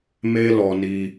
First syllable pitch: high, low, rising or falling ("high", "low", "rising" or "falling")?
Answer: high